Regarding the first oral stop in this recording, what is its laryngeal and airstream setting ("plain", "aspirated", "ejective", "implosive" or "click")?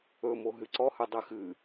click